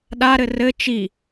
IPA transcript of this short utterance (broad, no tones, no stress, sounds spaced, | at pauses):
ɗ a ɾ ɘ r ɘ t͡ʃ i